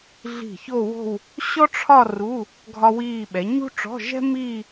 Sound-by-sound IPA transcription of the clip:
ɮ i̤˧˩ ç o˥˧ w o̤˥˧ w | ɕ ɔ˥ ʈ͡ʂʰ ɒ˥˧ r u˧˥˧ | ɡʱ ɒ˥ w iː˥˧ ɓ ɛ˨˥ ɲ ṳ˥ ʈ͡ʂ ɔ̤˧˥˧ ʒ ɛ̤˥ m iː˥˧

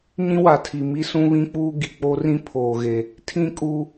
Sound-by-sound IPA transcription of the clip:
ɲ ĩ˦ w a˨ tʰ i˨ m i˦ s ũ˦ β ĩ˦ k͡p uː˦ ɡ i˨ k͡p o˦ r ĩ˦ pʰ oː˨ ɣ e˨ | tʰ ĩ˦ kʼ uː˦

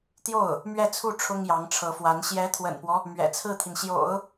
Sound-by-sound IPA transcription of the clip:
t̪ j o˥˩ ʊ̯ | m ɥ ɛ˥˧ t͡sʰ u˥˩ ʈ͡ʂʰ ʊ˥ ŋ j ɑ˧˥ ŋ ʈ͡ʂʰ ɤ˧˥ f w a˧˥ n ɕ j ɛ˧˥ t̪ʰ w ə̰˨˩ n p w ɔ˦ | m ɥ ɛ̰˨˩ t͡sʰ ɹ̩˥˩ t̪ʰ i˩ n ɕ j o̰˨˩˦ ʊ̯

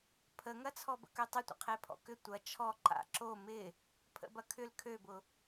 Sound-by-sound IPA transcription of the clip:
pʰ ə ŋ ɐ t͡sʰ ɔ b ə̰ k ø tˤ ɪ tʷ ə̰ qʰ e pʰ ɔ̰ k ʏ tʷ ɐ t͡ʃʰ ɔ ǃ a̰ ǁ o m ɪ | pʰ ə̰ b ɐ kʰ ʏ l kʰ ø b ʊ

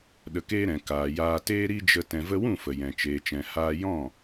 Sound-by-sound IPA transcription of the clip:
ɗ ə˧ k eː˦ ɾ ɛ̃˨ k aː˨ j aː˧ t eː˦ ɾ i˦ d͡ʒ ə˧ t ɛ̃˨ v ə˧ w ũ˦˨ f ə˨ j ɛ̃˨ t͡ʃ eː˨ t͡ʃ ɛ̃˨ h aː˧ j ɔ̃˦˨

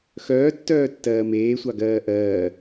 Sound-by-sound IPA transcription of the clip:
x œː tː œː tː ɜː m eː sʷ ɑ ɡ ɜː ʔ ɜː

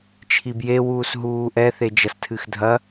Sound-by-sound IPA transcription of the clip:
t͡ʃʰ i b j e w uː s ɦ uː ʔ ɛ θ e d͡ʒ ɐ s tʰ ɨ x dʱ ɐ

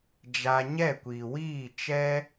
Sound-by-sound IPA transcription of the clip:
d͡ʒ a˧ ɲ ɛ˦˨ kʷ iː˨ w iː˦˨ t͡ʃ ɛ˦

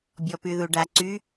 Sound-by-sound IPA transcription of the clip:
bʲ ɔ p y ð u ɖ a ǀ y

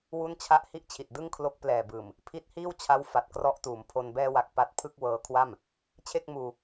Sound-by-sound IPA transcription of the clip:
w u˥˩ n t͡ɕʰ a˥˩ ʔ h i˥˩ ʔ t͡ɕʰ i˨˩ t̚ d ɯ˥˩ ŋ kʰ l o˦˥ k̚ p l ɛː˨˩ b ɯː˨˩ m | pʰ i˦˥ t̚ h iː˥˩ w t͡ɕʰ a˦˥ w f a˨˩ t̚ k r ɔ˦˥ ʔ t uː˩˦ m pʰ o˧ n b ɛː˧ w a˨˩ k̚ p a˦˥ t̚ pʰ ɯ˥˩ k̚ w ɤː˦˥ kʰ w a˥˩ m | t͡ɕʰ e˥˩ k̚ m uː˧

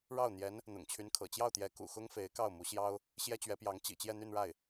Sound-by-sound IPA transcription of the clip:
ɻ ɑ˥˩ ʊ̯ n̪ j ɛ˧˥ n | n̪ ʊ̰˨˩ ŋ t͡ɕʰ y˧˥ n kʰ ɤ̰˨˩ t͡ɕ j ɑ˥˩ ʊ̯ t̪ j ɛ˧˥ k ṵ˨˩ x ʊ˥ ŋ f e˧˥ ɪ̯ k ɑ˥˩ ʊ̯ m u˧˥ ɕ j ɑ˥ ʊ̯ | ɕ j ɛ˥ t͡ɕ ɥ ɛ˧˥ p j ɑ˧˥ ŋ t͡ɕ ḭ˨˩ t͡ɕ j ɛ˥˧ n̪ y˥˧ n ɻ a˥˩ ɪ̯

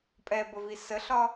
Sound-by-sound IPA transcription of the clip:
pʼ ɛ b ə v i s ə ɬ ɒ

